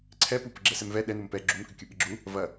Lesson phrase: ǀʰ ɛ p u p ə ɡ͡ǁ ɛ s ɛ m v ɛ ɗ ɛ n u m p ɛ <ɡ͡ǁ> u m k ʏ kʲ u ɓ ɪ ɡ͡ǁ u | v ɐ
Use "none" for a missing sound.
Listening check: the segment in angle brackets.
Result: ɡ͡ǁ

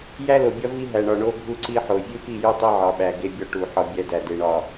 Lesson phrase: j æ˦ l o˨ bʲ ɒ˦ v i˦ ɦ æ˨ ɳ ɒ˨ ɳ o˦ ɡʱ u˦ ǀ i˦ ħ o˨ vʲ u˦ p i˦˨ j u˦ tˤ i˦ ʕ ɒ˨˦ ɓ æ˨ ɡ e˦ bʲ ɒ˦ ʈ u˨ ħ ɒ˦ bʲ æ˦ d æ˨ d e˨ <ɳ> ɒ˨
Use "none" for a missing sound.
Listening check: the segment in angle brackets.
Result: ɳ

